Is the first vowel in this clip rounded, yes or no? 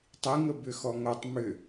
no